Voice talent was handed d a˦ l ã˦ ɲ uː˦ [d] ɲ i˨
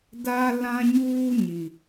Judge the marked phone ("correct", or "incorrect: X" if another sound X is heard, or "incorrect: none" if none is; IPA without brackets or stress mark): incorrect: none